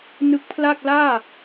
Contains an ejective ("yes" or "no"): no